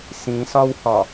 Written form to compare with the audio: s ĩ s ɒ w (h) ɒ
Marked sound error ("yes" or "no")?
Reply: no